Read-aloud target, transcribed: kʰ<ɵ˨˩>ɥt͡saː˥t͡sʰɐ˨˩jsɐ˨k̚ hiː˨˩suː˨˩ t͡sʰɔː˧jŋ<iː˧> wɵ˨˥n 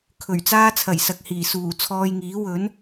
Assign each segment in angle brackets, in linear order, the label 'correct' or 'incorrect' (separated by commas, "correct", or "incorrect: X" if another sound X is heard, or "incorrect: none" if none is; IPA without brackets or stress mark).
correct, incorrect: iː˨˥